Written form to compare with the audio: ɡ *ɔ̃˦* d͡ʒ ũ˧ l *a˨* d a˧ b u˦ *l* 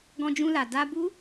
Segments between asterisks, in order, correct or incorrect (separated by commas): incorrect, correct, incorrect